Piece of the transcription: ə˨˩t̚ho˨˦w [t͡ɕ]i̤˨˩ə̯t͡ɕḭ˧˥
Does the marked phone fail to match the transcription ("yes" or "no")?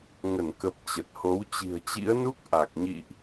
no